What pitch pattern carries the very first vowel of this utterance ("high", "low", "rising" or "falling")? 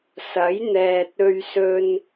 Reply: rising